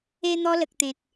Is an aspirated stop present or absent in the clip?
absent